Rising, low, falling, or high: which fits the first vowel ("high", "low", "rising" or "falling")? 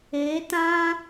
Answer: rising